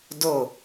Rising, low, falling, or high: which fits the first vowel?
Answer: falling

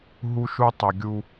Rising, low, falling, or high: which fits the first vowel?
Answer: high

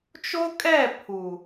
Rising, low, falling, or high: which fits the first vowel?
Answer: high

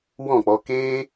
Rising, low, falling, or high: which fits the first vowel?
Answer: falling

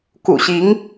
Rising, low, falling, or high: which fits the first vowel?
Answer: low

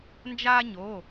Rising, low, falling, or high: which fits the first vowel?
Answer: high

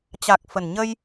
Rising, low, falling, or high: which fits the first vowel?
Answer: low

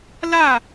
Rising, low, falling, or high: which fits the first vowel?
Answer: falling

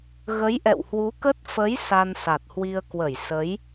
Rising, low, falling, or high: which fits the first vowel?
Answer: rising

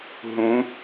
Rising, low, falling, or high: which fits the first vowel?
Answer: rising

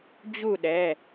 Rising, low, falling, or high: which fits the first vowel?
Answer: falling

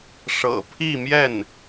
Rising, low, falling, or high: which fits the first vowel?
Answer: low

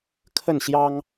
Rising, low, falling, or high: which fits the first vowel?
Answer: falling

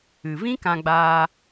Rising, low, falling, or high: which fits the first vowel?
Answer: low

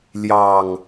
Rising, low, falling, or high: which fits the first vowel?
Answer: low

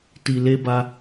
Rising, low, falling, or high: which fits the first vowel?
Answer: low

